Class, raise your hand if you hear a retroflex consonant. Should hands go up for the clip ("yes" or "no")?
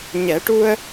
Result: yes